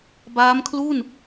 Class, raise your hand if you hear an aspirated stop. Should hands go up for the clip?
yes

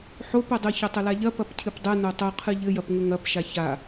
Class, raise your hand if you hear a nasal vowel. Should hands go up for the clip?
no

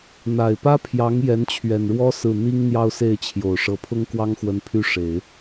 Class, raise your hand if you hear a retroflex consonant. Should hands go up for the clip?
yes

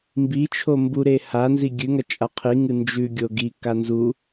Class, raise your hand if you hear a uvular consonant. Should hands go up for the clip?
yes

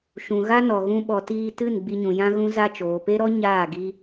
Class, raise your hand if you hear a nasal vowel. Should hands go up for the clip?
yes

